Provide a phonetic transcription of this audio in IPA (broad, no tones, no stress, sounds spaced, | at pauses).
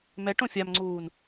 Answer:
m ɛ ʈ õ fʲ a m ŋ͡ǀ uː n